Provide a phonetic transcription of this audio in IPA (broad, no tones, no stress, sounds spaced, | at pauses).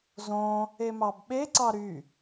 z õ | e m ɑ b ɓ e ǀ ɑ ɾ y